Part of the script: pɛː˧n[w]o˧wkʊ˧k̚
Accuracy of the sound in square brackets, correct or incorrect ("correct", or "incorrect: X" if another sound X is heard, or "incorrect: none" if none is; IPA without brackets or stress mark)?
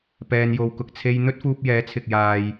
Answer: incorrect: j